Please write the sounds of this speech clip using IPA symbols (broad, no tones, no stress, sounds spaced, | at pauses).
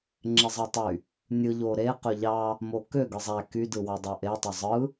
ŋ͡ǁ e zˤ ɑ tˤ y | nʲ ɯ ʎ o ɾ e q ø ʎ ɑ | m o k ø ɡ ɯ zˤ æ k y d ɯ w ɑ dˤ o ʔ e tˤ ø zˤ ɯ